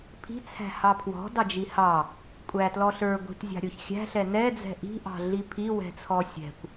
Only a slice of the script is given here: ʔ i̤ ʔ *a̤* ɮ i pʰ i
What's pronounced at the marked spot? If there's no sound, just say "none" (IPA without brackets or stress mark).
ɑ̤